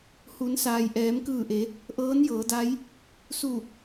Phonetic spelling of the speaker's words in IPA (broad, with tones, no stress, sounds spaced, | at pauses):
h u˩˧ n s aː˩ j ʔ ɛː˩˧ m k ɯː˧˩ ʔ e˩˧ | ʔ ɤː˧˥ n j ɤː˩˧ d a˧˥ j | s u˧˩